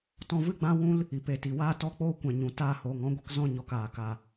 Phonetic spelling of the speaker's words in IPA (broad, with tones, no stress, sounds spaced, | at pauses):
t ɔ̃˧ v ɨ˦˨ ɡ͡b ã˦ w ũ˦ l | i˨ p e˨ t i˨ w aː˦ t ɔ˦ k͡p oː˦ kʷ ɛ̃˨ ɲ ũ˨ t aː˧ h oː˨ ŋ ɔ̃˦ ɡʷ ə˦ k z ɔ̃˦ ɲ ɔ˧ k aː˨ k a˨